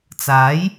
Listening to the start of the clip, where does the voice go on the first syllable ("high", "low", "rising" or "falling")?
rising